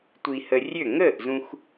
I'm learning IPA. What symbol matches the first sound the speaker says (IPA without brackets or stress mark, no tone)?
tʷ